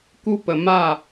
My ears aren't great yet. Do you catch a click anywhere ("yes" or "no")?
no